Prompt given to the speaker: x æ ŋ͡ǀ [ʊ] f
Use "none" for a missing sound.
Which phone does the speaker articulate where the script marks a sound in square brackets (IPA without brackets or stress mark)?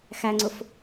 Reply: ʊ